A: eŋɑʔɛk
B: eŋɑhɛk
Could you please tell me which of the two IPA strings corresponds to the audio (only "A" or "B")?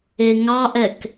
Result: A